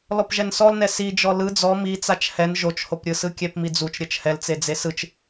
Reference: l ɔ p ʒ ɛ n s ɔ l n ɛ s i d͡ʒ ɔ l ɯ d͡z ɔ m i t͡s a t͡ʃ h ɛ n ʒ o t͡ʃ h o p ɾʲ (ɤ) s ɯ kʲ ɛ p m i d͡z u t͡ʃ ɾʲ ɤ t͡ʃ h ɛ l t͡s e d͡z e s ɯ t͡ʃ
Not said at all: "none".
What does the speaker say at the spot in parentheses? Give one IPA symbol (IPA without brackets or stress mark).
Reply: ɯ